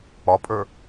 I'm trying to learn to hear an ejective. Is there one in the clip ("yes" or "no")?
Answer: yes